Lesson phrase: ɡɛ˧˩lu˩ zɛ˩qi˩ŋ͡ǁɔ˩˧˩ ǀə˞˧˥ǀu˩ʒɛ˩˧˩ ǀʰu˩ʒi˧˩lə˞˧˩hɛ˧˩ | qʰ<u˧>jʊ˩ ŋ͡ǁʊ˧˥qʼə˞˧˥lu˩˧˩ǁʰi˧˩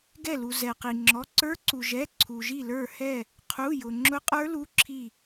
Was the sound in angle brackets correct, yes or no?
no